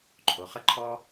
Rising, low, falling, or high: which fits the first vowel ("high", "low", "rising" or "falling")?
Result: low